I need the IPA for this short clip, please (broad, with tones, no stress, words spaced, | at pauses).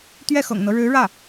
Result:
t̪ɥɛ˥˩xɤ̰˨˩ŋn̪ɤ˦ ɻɻ̩˧˥ ɻä˥˩